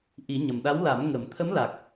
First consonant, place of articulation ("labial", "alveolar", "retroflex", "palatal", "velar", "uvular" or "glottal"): glottal